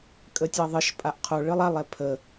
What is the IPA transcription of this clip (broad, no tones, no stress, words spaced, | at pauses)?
kʼətʲɑðˤɨʃpʼaʔ qʰo ɭɨlˠalˠɛ pʰə